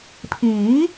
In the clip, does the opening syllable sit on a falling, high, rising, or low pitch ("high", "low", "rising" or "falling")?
rising